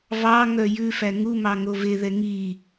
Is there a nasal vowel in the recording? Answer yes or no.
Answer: no